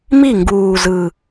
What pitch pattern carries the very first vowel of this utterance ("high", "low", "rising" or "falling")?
falling